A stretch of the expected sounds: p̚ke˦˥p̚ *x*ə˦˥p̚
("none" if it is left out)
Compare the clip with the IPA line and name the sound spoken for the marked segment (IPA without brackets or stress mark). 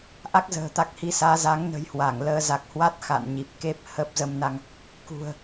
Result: h